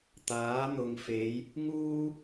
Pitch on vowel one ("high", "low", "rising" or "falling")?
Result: rising